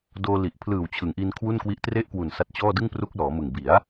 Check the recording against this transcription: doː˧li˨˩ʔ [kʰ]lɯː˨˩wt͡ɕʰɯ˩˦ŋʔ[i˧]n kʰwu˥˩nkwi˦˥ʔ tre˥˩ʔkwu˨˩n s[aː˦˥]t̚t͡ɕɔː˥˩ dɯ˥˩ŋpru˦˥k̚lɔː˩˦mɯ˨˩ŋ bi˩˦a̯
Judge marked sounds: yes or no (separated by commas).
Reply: no, yes, no